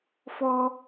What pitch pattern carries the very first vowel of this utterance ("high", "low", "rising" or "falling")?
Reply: high